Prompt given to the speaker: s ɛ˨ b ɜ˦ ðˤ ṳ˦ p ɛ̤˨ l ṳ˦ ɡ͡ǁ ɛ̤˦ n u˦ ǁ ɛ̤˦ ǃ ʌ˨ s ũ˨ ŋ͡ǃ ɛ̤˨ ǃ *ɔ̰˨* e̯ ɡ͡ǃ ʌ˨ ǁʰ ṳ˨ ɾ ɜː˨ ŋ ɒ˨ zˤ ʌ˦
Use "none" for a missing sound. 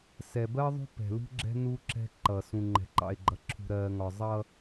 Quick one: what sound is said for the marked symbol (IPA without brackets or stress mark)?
ɑ̰˨